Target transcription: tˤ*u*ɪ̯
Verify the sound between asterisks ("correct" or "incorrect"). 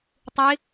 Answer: correct